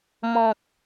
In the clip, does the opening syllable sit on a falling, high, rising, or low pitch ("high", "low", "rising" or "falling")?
low